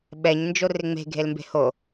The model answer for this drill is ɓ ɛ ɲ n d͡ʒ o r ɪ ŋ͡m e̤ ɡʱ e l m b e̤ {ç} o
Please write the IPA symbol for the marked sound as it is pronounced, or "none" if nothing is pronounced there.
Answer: h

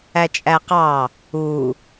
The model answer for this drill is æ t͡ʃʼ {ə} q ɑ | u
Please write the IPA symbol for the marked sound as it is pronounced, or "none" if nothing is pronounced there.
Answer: æ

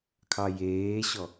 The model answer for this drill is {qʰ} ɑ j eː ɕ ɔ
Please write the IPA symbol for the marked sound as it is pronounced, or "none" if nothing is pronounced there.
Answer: kʰ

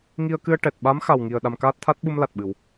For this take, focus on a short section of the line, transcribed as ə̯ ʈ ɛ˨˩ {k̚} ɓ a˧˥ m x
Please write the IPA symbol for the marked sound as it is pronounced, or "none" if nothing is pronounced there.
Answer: t̚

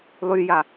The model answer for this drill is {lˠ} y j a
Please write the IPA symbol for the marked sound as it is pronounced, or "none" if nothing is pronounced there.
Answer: lˠ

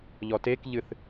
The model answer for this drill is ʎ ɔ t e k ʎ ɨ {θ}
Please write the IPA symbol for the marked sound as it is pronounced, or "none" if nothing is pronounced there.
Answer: θ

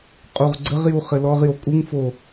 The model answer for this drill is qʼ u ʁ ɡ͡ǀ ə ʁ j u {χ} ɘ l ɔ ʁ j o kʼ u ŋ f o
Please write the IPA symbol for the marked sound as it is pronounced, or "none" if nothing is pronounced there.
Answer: χ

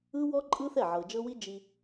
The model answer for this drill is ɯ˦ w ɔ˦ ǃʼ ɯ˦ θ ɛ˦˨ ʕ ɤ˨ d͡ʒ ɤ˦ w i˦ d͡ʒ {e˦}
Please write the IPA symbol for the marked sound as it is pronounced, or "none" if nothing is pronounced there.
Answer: i˦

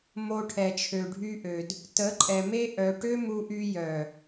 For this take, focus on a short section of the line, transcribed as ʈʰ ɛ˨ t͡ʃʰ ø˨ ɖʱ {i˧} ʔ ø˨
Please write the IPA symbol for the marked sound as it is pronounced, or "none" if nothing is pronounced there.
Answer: y˧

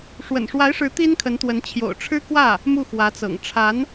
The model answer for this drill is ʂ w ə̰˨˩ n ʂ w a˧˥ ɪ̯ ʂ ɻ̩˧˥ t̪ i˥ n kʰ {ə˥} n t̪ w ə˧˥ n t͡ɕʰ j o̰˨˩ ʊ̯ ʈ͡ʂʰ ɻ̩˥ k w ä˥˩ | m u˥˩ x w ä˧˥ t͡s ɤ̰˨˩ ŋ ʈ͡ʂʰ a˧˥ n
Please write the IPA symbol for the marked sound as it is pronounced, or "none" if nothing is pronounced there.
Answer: ə˧˥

